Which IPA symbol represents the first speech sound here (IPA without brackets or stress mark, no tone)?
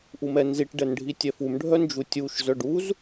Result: ʔ